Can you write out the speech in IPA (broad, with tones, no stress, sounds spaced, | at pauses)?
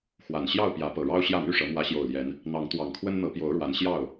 x w a˨˩ n ɕ j ɑ˥˨ ʊ̯ p j ä˨˦ p ɤ˨˩ ɻ ɑ˦ ʊ̯ ɕ j ä˥˨ m y˥˨ ʂ ɤ˨˦ m w ä˨˦ ɕ j o˨˩ ʊ̯ l j ɛ˨˦ n | n̪ ɑ˨˦ ŋ t̪ w ɑ˨˩ ŋ kʰ w ə˦ n n̪ ɤ˨˦ p j o˨˦ ʊ̯ ɻ w a˨˦ n ɕ j ɑ˥˨ ʊ̯